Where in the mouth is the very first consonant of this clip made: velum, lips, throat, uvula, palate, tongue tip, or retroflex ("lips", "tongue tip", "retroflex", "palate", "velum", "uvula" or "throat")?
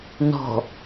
tongue tip